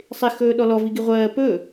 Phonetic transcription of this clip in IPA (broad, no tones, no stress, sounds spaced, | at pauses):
sˤ ɪ x ɵː ɗ ɔ l ɔ v i ɡ i ʁʷ ɜː p ɵ